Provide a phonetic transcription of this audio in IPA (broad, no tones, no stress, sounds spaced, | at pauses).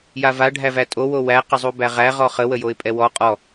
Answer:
j a v a ɖʱ æ v æ tʼ o w o w æ q ə zˤ u b æ ʁ æ ʁ ɔ χ ə w ə j o ɪ̯ pʼ ɛ w ɔ qʼ ɔ